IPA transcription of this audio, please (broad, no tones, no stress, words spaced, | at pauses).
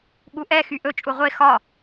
ɠuʔɛ xyʔɵ t͡ʃʼuʁʷe xɒ